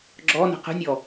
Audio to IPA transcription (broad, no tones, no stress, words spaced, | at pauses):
ɡ͡ǁɔnə̤ qə̤nʲɔ